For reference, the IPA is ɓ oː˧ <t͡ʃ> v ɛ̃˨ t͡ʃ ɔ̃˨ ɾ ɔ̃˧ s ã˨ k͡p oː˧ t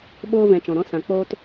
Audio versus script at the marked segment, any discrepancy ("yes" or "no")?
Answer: yes